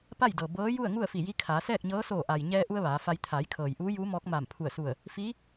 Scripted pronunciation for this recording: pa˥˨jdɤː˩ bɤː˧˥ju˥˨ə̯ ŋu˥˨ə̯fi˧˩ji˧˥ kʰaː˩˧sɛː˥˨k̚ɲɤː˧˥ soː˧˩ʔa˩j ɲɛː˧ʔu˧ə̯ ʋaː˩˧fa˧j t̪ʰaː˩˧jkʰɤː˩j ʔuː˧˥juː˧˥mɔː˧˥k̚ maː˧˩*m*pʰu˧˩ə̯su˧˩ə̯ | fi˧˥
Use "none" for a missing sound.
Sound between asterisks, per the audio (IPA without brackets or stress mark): m